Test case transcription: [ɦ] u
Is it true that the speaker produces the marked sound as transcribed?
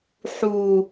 no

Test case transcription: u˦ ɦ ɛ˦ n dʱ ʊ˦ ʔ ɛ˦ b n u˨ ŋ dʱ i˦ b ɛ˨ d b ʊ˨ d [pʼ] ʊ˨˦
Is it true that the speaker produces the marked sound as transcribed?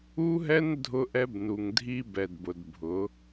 no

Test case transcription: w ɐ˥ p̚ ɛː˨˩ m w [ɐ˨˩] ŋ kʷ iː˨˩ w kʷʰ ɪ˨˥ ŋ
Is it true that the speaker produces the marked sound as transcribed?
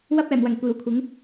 yes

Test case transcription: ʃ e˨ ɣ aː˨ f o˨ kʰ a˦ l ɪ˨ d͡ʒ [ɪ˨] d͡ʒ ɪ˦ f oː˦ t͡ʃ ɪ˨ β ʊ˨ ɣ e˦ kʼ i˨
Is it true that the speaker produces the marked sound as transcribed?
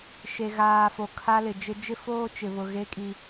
no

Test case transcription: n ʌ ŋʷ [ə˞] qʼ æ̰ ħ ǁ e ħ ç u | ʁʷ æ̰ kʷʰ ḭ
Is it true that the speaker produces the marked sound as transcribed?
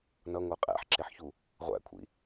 yes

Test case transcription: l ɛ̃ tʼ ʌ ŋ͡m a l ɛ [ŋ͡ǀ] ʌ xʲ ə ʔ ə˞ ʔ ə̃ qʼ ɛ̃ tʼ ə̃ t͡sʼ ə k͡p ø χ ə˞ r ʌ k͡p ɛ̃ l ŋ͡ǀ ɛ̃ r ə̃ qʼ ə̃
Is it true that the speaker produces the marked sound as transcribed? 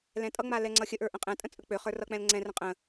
yes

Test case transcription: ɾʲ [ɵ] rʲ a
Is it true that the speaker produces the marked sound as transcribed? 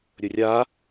yes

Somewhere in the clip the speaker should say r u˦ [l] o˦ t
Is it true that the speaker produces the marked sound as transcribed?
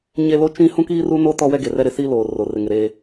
no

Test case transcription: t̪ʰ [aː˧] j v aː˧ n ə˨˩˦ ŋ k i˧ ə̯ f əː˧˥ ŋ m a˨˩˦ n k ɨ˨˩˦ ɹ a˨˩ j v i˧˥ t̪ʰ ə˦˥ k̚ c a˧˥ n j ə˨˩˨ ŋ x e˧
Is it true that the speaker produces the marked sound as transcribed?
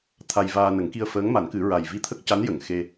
no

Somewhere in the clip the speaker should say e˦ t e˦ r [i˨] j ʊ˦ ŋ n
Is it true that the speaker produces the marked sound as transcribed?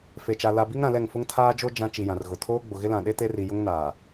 yes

